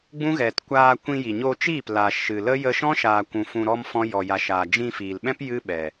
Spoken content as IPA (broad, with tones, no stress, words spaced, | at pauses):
ɡ͡bũ˦ɣɛ˨tkʷaː˧ kʷĩ˧ji˨ɲoː˧t͡ʃiː˦˨p la˨ ʃɨ˨lə˦ jə˧ʃɔ̃˦ʃaː˨kʷũ˨ fũ˧ɾɔ˦mfɔ̃˦ jɔ˨ja˨ʃaː˨ d͡ʒĩ˧fiː˨lɓɛ̃˦p jɨ˦ɓɛ˨